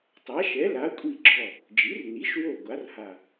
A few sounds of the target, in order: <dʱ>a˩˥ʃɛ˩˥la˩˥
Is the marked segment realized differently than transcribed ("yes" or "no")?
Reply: yes